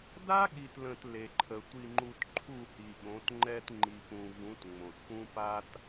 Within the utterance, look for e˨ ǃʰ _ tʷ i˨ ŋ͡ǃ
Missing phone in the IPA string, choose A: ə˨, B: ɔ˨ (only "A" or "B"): A